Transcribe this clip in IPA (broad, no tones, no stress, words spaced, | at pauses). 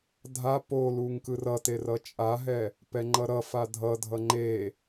dʱa poluŋ kɯrʌte rʌt͡ʃʼaɦɛ | pɛŋ͡ǃʌɾʌfa dʱʌdʱʌ ŋ͡ǃe